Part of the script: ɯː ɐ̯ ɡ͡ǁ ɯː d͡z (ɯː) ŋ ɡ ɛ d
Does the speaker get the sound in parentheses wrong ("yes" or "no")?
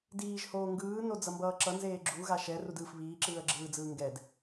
no